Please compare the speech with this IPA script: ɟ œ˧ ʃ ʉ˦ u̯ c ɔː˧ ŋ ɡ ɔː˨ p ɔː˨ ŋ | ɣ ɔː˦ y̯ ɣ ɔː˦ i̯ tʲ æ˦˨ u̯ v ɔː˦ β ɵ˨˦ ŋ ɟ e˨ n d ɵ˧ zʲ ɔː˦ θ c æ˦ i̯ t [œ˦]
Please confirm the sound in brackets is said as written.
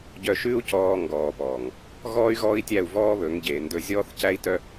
yes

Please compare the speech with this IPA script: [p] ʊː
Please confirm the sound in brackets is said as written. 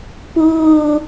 yes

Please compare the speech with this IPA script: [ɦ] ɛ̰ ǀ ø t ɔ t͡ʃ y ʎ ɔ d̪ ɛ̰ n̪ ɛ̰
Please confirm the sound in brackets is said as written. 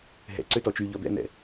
yes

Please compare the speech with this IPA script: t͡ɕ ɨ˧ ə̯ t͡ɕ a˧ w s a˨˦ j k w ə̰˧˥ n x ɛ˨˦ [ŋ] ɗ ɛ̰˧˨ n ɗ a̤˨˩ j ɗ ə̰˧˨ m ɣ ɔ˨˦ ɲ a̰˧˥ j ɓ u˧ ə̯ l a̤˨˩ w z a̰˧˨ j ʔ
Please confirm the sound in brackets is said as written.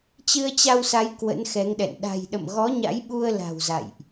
yes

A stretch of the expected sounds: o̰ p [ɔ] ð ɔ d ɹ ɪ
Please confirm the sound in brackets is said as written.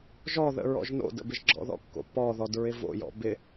yes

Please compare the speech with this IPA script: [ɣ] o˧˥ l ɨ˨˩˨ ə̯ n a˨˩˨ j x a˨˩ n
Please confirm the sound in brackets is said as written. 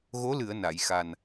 yes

